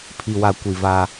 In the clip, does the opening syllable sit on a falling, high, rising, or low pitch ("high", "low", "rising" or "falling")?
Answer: low